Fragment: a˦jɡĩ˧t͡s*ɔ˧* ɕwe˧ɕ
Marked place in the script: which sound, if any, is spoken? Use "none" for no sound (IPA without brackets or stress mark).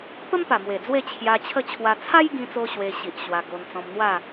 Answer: o˧